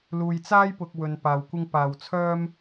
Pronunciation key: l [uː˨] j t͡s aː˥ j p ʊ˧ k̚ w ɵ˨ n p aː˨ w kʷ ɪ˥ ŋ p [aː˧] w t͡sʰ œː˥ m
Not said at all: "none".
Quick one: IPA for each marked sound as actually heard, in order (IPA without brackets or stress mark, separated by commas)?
uː˨, aː˨